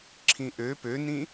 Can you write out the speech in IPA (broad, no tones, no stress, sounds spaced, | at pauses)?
ǁʰ ĩ ʔ ø p ø n ĩ